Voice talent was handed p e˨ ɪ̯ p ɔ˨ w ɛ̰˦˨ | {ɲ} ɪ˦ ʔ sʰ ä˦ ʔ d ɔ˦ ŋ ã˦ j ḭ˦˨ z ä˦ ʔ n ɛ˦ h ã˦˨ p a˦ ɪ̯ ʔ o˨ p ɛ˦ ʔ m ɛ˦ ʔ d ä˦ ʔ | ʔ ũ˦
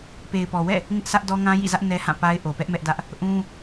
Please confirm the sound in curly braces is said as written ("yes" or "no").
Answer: no